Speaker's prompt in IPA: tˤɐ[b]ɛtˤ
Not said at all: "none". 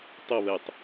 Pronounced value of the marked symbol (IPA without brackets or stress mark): β